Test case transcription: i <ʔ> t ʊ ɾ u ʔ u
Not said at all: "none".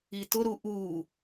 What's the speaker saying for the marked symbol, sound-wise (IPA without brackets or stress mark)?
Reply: none